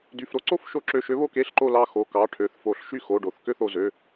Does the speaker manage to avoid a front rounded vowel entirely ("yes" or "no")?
no